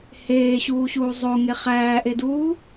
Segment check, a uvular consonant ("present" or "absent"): present